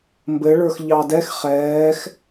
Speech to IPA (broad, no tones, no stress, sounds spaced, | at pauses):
m b ɘ ɭ ə˞ x ʎ ɑ d ɛ x χ ɛː x